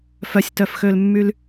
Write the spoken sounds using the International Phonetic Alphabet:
f œ sʲ t œ f x ø l mː y l

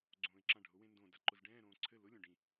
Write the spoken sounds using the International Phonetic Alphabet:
ɡ͡ǀ õː ɪ̯ ǁ ã ɖʱ ʊ w ẽ n d õ d a ǃ ʊ z ɖ ɛ̃ː ɾ õː ǀʰ ɘ l ʊ lʲ õ ɖ ĩ

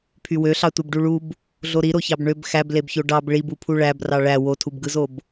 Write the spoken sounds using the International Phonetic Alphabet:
pʰ y w ø ɬ ɑ tʷ e b ɖ u ɭ u b | ɮ o ɾ i ɾ o ç ɑ b ɳ ø b x æ b l e b ç o ɖ ɑ b ɭ i b u pʰ u ɭ æ b r ɑ ɭ æ w o tʰ u b ɡ ɯ z o b

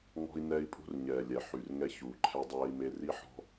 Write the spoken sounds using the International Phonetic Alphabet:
ŋ ɔ̤˦ i̯ n ɛː˦ i̯ pʼ ṳ˦ r ɲ ɛː˨ lʲ ɛ˨ ħ y˨ r ŋ ɛ˦ ç uː˨ ǃʰ ɛ˦ dˤ ɛː˦ i̯ m e˦ r i˦ ħ ɔ̤˦

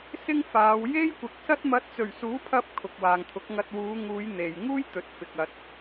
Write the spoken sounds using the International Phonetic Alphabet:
s ɪ˥ ŋ f aː˨˧ w j e˥ j kʷ ɪ˨ k̚ s ɐ˥ t̚ m ɐ˨˥ t̚ t͡s ɵ˨˩ ɥ s uː˨˥ pʰ ɐ˧ p̚ kʰ ʊ˨ k̚ w aː˨ ŋ t̪ʰ ʊ˨˥ k̚ ŋ ɐ˧ t̚ w uː˨˧ ŋ uː˨˧ j n̪ e˨ j ŋ uː˥ j t̪ ɵ˨ t̚ f ɪ˨ k̚ ɐ˨ t̚

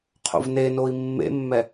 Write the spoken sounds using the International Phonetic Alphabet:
qʰ o̰ v n e n o i̯ mː ḛ mː ɛ

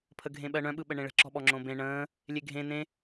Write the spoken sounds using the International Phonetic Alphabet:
pʰ ə ɡʱ ẽ ɓ ɜ ɳ œ̃ ɓ ɯ ɓ ə ɳ ẽ ɭ ə̤ ǁ ɔ̤ ɓ ɔ ŋ͡ǁ õ b ẽ ɳ ə̃ː | lʲ e ɡʱ ẽ n ẽ

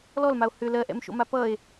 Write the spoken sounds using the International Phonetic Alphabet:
l ɔ l m a o̯ h ʏ l ɜ ʔ ɛ̰ m ʃ o̰ m a p ʌ e̯

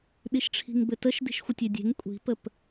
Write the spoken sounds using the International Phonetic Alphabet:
ɗ i ʃ ʈ͡ʂʰ i̤ ŋ b ɘ t ə ʃ d i̤ ʃ xʷ ə tʲ e dʲ e̤ ŋ kʷʼ i̤ p ə p

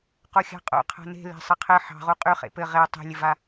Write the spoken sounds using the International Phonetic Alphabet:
q o xʲ ɑ̤ qʼ o̰ qʰ a̤ n e̤ l e̤ sˤ ɘ qʰ ɘ ħ ɑ̤ ʁ u qʼ y χ ḛ p ɘ ʁ e tˤ i̤ lʲ ɘ v a

